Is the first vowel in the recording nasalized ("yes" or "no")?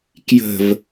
no